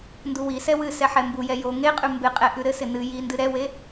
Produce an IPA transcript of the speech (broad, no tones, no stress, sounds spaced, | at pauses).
n d u w i s ɛ w ɨ s ɛ ħ ɛ m b u j ɛ j o ŋ e qʼ ʉ m b ɪ qʼ ɛ ʔ ʉ ɾ ɘ s ɪ n ɨ j i n d ɨ ɾ ɛ w e